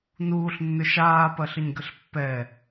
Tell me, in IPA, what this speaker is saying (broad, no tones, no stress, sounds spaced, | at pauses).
n uː ɬ nː ʏ ʃ aː p ɐ ɬ ə ɲ ɡ ə ɬ pː ɛ